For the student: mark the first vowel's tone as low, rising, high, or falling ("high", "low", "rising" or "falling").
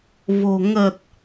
low